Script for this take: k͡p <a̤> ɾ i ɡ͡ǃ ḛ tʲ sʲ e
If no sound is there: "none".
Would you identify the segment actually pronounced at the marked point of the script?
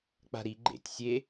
a̤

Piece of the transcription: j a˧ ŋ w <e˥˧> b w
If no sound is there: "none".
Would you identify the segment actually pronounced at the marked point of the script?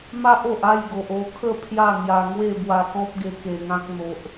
e˥˧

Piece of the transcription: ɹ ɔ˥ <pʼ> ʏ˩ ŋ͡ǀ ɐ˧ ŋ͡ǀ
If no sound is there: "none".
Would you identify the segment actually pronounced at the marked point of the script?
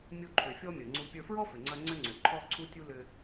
f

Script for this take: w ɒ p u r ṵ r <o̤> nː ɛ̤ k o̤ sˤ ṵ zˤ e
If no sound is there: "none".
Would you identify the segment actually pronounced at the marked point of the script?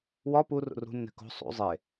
ṳ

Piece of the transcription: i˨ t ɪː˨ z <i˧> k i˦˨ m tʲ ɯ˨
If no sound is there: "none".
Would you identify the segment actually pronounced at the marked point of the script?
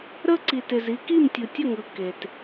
i˧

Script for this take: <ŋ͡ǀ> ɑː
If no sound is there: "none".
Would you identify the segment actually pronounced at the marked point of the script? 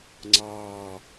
ŋ͡ǀ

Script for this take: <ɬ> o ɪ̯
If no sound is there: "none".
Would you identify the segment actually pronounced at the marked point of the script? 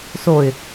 s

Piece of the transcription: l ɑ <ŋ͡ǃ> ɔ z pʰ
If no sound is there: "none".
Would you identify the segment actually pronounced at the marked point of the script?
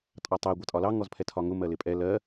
ŋ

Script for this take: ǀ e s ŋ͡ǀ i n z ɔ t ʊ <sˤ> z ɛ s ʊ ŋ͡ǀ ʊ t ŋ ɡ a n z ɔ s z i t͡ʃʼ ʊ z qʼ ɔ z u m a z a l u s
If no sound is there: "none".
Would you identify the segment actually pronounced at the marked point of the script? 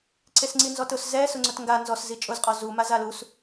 s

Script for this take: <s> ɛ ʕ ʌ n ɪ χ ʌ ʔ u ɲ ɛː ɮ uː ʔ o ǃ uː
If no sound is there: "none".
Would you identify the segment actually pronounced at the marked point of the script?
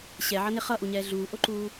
ɕ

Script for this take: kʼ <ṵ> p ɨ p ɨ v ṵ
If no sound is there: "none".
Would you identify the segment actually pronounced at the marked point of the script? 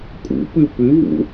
ṵ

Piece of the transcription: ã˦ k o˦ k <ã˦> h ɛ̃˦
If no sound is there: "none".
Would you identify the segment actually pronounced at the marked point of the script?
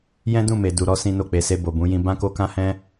ã˦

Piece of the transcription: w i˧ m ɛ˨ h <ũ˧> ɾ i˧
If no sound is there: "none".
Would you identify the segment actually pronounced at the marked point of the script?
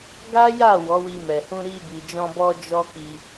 ũ˧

